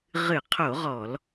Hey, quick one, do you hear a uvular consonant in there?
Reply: yes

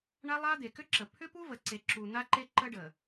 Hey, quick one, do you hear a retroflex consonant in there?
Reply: yes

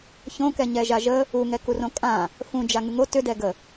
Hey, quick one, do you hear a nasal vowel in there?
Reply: yes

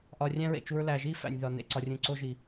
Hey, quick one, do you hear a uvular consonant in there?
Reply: no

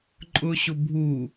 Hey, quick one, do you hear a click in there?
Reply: yes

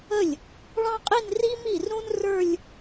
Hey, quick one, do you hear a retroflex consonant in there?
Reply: yes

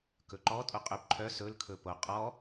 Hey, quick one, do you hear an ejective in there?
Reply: yes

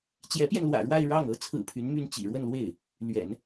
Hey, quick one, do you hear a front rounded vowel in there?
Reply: yes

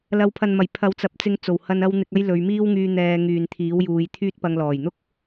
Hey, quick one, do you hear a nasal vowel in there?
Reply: no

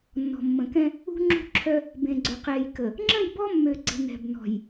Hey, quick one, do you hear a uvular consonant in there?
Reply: yes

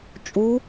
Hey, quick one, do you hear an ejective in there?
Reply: yes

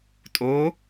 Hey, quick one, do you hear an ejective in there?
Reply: yes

